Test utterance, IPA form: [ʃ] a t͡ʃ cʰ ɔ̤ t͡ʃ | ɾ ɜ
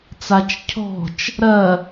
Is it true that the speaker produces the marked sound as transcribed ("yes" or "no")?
no